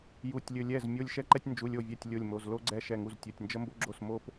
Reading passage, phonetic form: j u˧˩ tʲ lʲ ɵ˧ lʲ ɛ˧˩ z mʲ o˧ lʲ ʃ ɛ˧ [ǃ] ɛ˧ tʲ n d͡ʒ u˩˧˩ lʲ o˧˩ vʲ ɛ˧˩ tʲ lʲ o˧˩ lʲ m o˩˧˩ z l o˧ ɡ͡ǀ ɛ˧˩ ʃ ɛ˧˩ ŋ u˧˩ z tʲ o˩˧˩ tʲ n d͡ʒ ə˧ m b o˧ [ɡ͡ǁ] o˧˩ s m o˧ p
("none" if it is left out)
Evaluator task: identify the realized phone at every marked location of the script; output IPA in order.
ǃ, ɡ͡ǁ

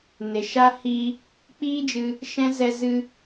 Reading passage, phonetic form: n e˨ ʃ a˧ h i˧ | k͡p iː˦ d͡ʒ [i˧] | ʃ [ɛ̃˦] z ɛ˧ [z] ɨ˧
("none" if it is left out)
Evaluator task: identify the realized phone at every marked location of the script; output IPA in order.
ɨ˧, ɛ̃˦, z

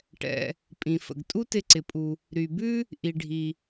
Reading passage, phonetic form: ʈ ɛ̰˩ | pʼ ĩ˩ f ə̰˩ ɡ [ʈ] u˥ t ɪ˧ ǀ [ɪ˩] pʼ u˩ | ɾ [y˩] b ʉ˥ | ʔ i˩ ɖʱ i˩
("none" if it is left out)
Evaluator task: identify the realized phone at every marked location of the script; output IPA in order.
tʼ, ɪ˩, y˩

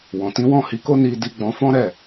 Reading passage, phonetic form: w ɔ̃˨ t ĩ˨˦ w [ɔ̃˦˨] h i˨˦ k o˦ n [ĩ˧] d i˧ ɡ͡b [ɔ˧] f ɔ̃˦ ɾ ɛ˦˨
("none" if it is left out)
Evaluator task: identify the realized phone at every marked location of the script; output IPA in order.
ɔ̃˦˨, i˧, ɔ̃˧

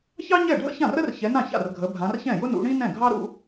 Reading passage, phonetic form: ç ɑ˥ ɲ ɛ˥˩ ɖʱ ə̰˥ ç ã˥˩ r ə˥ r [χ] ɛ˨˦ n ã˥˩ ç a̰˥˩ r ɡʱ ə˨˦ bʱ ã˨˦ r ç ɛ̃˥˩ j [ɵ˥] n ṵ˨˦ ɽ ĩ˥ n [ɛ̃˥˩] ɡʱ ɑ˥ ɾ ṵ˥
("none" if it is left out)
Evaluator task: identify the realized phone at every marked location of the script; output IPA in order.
ç, ʊ˥, ɛ̃˥˩

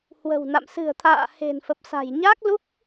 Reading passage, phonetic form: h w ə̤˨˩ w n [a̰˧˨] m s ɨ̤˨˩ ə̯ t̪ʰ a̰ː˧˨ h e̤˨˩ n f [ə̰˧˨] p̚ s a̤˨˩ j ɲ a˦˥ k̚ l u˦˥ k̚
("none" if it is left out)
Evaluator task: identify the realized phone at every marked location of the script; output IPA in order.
a̰˧˨, ə˨˩

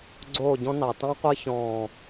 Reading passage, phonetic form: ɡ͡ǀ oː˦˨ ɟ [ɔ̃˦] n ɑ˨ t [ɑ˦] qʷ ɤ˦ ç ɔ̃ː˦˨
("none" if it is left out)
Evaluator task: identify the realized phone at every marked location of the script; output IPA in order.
ɔ̃˦, ɑ̃˦

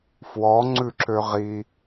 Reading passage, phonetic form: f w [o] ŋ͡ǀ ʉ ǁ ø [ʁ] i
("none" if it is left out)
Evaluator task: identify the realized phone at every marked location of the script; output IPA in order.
ɔ, ʁ

